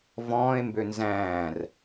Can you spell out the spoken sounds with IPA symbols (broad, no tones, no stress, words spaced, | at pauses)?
vɔ̃ːe̯mbø nzæ̃ːr